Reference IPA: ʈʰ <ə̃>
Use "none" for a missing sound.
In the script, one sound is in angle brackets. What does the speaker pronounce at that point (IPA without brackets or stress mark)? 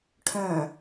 œ̃